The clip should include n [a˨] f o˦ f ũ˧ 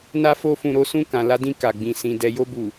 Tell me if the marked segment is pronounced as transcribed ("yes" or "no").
no